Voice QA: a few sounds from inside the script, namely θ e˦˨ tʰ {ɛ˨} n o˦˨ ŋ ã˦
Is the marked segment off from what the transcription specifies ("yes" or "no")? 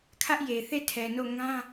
no